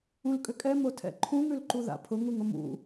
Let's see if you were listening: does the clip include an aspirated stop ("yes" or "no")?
yes